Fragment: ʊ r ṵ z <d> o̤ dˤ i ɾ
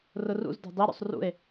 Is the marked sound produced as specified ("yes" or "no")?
yes